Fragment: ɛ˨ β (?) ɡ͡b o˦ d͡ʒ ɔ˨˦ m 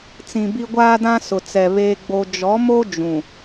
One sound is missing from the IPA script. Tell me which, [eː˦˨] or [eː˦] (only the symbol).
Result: eː˦